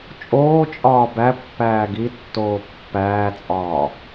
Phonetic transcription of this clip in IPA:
t͡ʃʼoːt͡ʃʼɒː bæ pːæːɡitːoː pːæːt͡sʼɒː

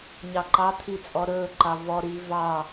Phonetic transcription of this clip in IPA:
ɲɑǃɑt̪ʰi t͡sʼɔɾɵːǃɑ vɔɾiː vɑ

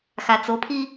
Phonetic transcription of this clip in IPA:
xat͡sopʰi

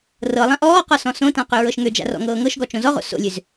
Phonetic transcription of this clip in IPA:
rɤlˠã ʔɔːqɔ sɔ̃sõtã qøɹɤʃŋød͡ʒa̰ rɔ̰ŋɤːŋɤʃɡɔ t͡ʃõzɔʁo̰ so̰lʲøz

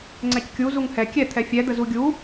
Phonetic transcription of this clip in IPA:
ŋ͡ǀɛckʲu zuŋhɛ kʲɛ t̪ʰɛfʲɛ d̪əzuɡʲu

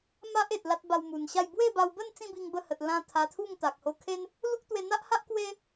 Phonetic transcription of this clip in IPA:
ma˦ʔe˨t̚ la˦t̚ba˧wmu˨˩nɕa˥˧j bwe˥˧ba˧wbə˥˧n t͡sĩ˥˧bi˧ŋbə˧hə˨t̚ lã˧ t̪ʰa˧t̪ʰu˥˧ŋt̪a˨k̚ ho˧kʰe˦n | lu˦k̚t̪we˧n̪a˦ʔha˦ʔ kwe˦

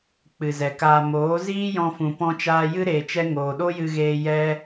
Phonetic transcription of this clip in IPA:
k͡pɨ˨zɛ˨kaː˧ moː˨˦ziː˦jɔ̃˧fũ˨ pɔ̃˧t͡ʃaː˧jɨ˦ ɾeː˧t͡ʃɛ˦ ŋoː˨ɗo˦jɨ˧ɣeː˧ jɛ˦

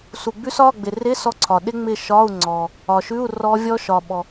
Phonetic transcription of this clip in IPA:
su˨ɡ͡bʉ˦˥sɒ˧˥˧ ɡ͡bɪ˨rɪ˧˥˧ sɔ˦˥ǀʰɒ˨ ɗɪ˦˥ŋ͡mɪ˦˨ ʃɒ˧˥˧u̯ŋ͡ǀɔ˨ | ɒ˨ʃʉ˧˥˧u̯ rɔ˦˥vʲɔ˦˥ ʃɒ˨ ɓɔ˨

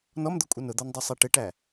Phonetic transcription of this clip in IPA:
nɔmd̪ʊkʷʼə nʊd̪ɔndˤusˤi ʈɪʈæ

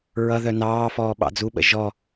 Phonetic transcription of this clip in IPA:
ɹʌðœ nɑːfɔː ɓɑ̰d͡zuɓə̰ ʒɔ

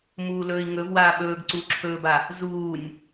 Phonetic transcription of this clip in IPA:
muːlɵːi̯ŋɵvwaː ɓɵːɡ ǀuːǁʰɵːba | zuːnʲ

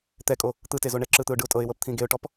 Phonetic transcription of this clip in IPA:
t̪ɛkʼo | t̪ɯtezo ɳɛǁɯt̪ɯʊ̯ ɖɯʊ̯tʼɤɪ̯wɤp t̪ʰĩɡeʊ̯ʈɔp

